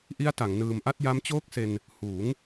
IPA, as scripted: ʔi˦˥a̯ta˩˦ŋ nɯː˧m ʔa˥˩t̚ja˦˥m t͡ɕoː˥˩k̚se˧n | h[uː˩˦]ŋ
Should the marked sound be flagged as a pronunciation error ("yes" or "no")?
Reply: no